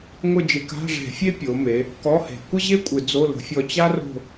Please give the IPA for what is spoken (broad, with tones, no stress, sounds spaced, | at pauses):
ŋʷ ɪ˦˨ d͡ʒ ɪ˧˩˧ k a̤˧˥˧ ʐ e̤˧˩˧ fʲ e˥ pʲ o˩˧ m e˩˧ | k ɔ˧˥˧ h e̤˧˩˧ kʷ ə˥ ʑ e˥ kʷʼ ɪ˧˩˧ d͡z o˧˥˧ l ə̤˧˩˧ fʲ ɔ˦˨ t͡ɕ a˥ r o̤˦˨